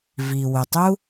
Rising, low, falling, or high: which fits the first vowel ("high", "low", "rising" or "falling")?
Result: low